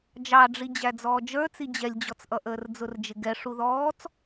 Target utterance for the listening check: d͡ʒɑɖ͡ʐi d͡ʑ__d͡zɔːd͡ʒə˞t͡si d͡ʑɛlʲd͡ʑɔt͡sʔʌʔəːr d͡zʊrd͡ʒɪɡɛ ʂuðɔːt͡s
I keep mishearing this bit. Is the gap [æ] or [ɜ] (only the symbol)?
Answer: æ